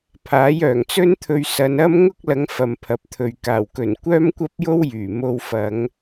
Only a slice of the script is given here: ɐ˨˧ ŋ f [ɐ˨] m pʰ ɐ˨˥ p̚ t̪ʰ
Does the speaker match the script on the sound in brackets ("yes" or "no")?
yes